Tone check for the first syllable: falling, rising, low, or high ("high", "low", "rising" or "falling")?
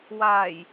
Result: low